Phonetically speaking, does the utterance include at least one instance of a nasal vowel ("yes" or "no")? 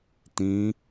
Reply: yes